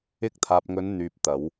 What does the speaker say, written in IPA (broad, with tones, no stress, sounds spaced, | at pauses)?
ɪ˧ k̚ t̪ʰ aː˨ p̚ ŋ ɵ˨˧ n n̪ yː˨ p̚ t̪ ɐ˨˧ w